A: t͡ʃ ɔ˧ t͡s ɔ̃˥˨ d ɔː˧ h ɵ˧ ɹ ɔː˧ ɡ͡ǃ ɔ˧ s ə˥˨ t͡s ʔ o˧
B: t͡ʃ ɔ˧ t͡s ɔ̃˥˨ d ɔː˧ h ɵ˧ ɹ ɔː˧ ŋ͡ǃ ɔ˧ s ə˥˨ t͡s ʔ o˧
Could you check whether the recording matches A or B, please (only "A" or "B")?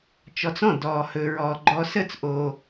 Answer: A